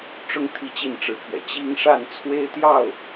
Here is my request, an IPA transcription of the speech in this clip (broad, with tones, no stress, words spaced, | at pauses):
ʈ͡ʂʊ˥ŋ t̪ʰi˥˧t͡ɕi˥˩n ʈ͡ʂɻ̩˧˥pʰɥɛ̰˨˩ t͡ɕi˥ŋʂa˥˩n t͡sʰwe˥ɪ̯t̪jɑ˥˩ʊ̯